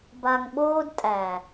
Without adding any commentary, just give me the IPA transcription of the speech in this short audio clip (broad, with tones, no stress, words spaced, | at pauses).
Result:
ba˨ŋɓoː˦dtʼæ˨